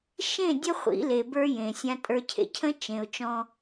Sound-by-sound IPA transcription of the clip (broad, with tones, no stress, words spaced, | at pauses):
ʃẽ˦˨dʲə˦ χʷḭ˨˦le˨bə˞˦jẽ˨ sʲã˨tʼə˞˨cʰḛ˨cʰə̃˦ t͡ʃẽ˨ʊ̯ t͡ʃɔ̃˦